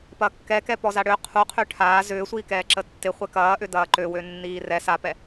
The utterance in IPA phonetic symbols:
p ɐ kː ɛ k ɛ p ɔ z a ɽ ø qʰ u qʰ ø ʈʰ aː z ʏː sʷ iː k ɛː ǁ ə tː ɪ χʷ ɛ k ɐː ʔ ʏ d ɐː ǃ ø w ø nː iː r ɛ s a p ɛ

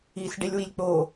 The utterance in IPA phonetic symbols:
i s ɖ e lʲ w i lʲ k͡p o

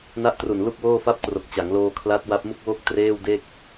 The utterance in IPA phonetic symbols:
n a˦˥ ʔ t r u˨˩ n l u˥˩ k̚ w oː˥˩ f a˥˩ p̚ t r o˨˩ k̚ t͡ɕ a˩˦ ŋ l oː˧ kʰ l a˦˥ t̚ w a˦˥ p̚ m u˥˩ k̚ w o˥˩ k̚ t r eː˥˩ w d e˥˩ k̚

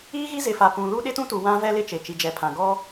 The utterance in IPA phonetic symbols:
iː˦ ɣ i˦ z ɪ˨ f a˨ p ũ˨ l u˦ ɗ ɪ˦ t ũ˦ t u˨ w ã˦ v ɛ˦ l ɪ˦ t͡ʃ e˨ t͡ʃ i˨ d͡ʒ ɛ˨ pʰ ã˨ ɡ ɔ˦

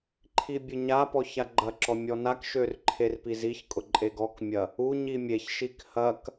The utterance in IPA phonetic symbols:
ǃʰ i bʲ ʊ ɲ a p ɔ ç a ɡ͡ǃ ɐ ǁ ɔ mʲ ɔ n a k ʃ ø r ǃʰ e r p i z i ç kʼ ʊ ǃʼ e ɡ ɔ k mʲ ɐ | u ɲ i mʲ e ç ʃ i k h ɐ k

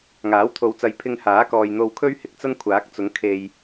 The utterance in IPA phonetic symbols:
ŋ aː˨˥ w t̪ʰ o˨˧ w t͡s ɐ˨ j pʰ ɪ˧ ŋ h aː˨˥ k ɔː˨ j n̪ o˧ w kʰ ɵ˥ ɥ h ɪ˨˥ k̚ t͡s ɐ˥ n kʷʰ aː˨˥ k̚ t͡s ʊ˨˥ ŋ kʰ e˨ j

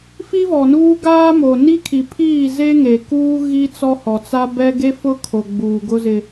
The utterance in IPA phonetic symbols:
f i˦ v ɔ˨ n uː˦ ɡ aː˦ m o˨ n i˦ kʰ i˨ pʰ iː˦˨ z e˦ ŋ e˨ k uː˦ ɣ i˦ t͡s ɔ˦ h ɔ˨ t͡s a˦ b ɛ˦ ɡ e˦ f ʊ˦ kʰ o˨ ɡ͡b uː˨ ɡ ʊ˦ z ɪ˦

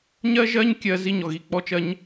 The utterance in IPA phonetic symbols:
ɲ ɜ˦ ʒ ɜ˦ ɲ kʲ ɜ˦ z i˦ ɲ ɔ˨ ɣ i˨ k͡p ɔ˧ t͡ʃ ɜ˧ ɲ

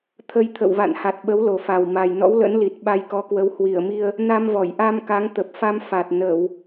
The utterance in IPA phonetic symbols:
t̪ʰ ə˧ j t̪ʰ ə̰˧˨ w v a̰˧˨ n h a˨˩ t̚ ɓ ə˨˦ w l o˨˩ f a˨˩ w m a˨˩ j n ɔ̰˧˥ w l ə̰˧˥ n l i˨˩ t̚ ɓ a˧ j k ɔ˨˦ k w ə˨˦ w h w i˧˩ ə̯ m i˧ ə̯ | n a˧ m v ɔ˧˩ j ʔ a˧ m k a˨˦ ŋ t̪ ə˨˩ p̚ f a˧ m f a˨˩ t̚ n ə˧˩˨ w

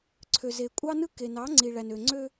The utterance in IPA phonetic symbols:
ǀʰ ø˨ z e˨ kʷʼ ɑ˦ n ɯ˦ k e˨ n ɑ˨˦ ŋ͡ǀ i˨ ɭ æ˨ n ø˨ ŋ͡ǀ ø˦

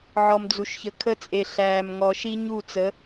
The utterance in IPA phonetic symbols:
ʕ ɔ˨ m d͡z u˨ ʃ ç ə˨ kʰ ə˦ t͡sʼ e˨ ɬ æː˨ m ŋ ɔ˨ ʃ i˦ ɲ u˦˨ t͡s ə˨˦

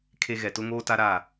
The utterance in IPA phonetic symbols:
kʰ e˦ ɣ ɛ˨ t ʊ˦ ŋ oː˦ t a˦ ɾ a˦˨

